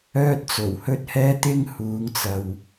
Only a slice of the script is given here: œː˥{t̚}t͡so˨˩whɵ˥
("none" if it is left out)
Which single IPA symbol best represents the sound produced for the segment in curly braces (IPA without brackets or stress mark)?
t̚